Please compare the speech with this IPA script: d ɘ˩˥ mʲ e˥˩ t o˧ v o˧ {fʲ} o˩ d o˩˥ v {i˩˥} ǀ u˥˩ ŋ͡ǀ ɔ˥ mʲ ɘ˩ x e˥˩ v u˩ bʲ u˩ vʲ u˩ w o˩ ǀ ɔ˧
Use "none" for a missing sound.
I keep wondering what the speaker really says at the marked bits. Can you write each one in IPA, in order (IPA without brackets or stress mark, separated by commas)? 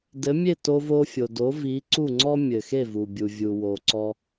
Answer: fʲ, i˩˥